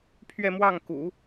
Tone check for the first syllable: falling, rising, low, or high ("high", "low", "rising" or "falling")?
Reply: falling